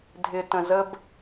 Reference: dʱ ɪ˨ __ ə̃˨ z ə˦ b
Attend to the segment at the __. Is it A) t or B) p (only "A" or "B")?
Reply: A